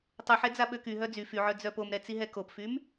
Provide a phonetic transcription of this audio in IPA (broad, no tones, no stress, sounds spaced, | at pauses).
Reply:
tˤ u ħ ɛ d͡z a ɓ ø k y ɦ œ d͡z y f y ʕ œ d͡z œ p o m ɾ ɛ t͡s i ɦ ɛ k o p f y m